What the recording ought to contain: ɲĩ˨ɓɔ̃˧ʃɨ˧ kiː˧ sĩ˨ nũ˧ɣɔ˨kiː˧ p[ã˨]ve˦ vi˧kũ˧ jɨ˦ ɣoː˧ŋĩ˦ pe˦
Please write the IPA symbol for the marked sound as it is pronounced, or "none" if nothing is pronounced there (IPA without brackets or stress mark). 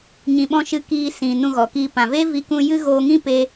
ã˨